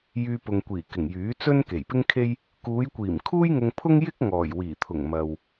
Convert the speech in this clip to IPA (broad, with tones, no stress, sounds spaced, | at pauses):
j yː˧ p ʊ˨ ŋ kʷ iː˨˩ k ɪ˨˩ ŋ j yː˨˥ t͡s ɵ˥ n k e˨˩ j p ɪ˥ ŋ kʰ e˥ j | k uː˨˧ j kʷ iː˨˩ m kʰ uː˥ j ŋ ʊ˧ ŋ pʰ ʊ˥ ŋ j ɪ˥ k̚ ŋ ɔː˨˩ j w iː˨˩ t̪ʰ ʊ˨˩ ŋ m ɐ˨ w